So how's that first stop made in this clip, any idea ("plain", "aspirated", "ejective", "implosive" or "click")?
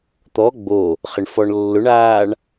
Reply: plain